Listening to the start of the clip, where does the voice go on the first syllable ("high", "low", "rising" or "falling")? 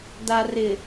low